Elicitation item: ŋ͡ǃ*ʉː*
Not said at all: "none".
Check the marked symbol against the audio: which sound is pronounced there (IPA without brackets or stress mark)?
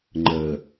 əː